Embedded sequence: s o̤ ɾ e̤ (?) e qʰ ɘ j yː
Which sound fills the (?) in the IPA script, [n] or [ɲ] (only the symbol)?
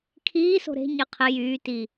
ɲ